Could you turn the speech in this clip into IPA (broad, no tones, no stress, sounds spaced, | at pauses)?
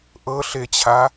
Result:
ʔ ɤ ɬ e t͡ɕʰ a